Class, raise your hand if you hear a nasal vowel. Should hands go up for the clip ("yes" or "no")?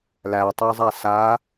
no